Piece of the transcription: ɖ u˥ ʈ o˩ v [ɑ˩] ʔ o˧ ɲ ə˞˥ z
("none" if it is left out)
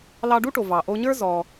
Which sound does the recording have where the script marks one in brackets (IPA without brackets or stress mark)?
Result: ɑ˩